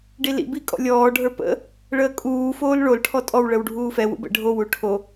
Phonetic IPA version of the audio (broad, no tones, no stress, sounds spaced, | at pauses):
ɖ i l ḭ b i kʼ ɔ̰ lʲ ɔː ɖʱ ə˞ p ə̰ | ɭ əː kʼ uː f oː l ɭ o l ʈʰ ɔ tʼ ɔ w ɭ ə w ɖʱ uː f ɛ w ṵ b ə̰ ɖʱ o w u ʈʰ o